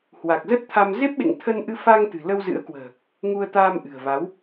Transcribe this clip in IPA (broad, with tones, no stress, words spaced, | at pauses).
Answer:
hwa˨˩k̚zə˦˥t̚t̪ʰa˧m ze˦˥p̚ɓḛ˧˨ŋ t̪ʰə˧nʔɨ˧ fa˧ŋ t̪ɨ̤˨˩lə˧wzɨ̰˧˥ə̯kwə̤ː˨˩ | ŋu˧ə̯t̪aː˧mʔɨ̤˨˩ə̯va˨˦w